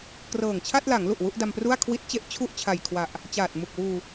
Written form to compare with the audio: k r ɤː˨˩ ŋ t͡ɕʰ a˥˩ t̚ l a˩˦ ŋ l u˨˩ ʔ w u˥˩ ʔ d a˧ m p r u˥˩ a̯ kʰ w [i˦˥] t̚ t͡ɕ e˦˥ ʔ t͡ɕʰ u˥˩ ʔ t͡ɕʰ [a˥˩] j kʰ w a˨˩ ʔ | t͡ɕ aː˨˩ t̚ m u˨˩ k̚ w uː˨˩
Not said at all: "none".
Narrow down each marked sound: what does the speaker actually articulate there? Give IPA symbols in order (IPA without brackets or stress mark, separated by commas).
i˦˥, a˨˩